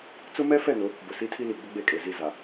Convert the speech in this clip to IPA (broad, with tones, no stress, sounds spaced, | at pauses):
t͡s ʊ˦ m ɛ˦ f ɛ˦˨ n ʊ˨˦ | b ʊ˨ s i˦ tʰ i˦ l i˨ ɡ͡b ʊ˦ ɡ͡b e˦˨ kʼ e˨ z i˦˨ z a˨